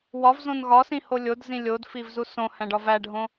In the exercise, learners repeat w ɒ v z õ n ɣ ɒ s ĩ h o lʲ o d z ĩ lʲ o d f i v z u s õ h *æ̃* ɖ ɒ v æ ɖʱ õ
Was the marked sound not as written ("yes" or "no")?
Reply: no